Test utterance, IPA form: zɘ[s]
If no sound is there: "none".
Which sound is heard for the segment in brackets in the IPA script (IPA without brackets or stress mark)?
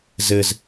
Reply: z